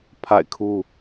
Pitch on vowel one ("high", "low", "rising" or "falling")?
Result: falling